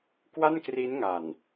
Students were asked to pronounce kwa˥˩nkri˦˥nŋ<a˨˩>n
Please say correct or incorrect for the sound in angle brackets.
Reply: correct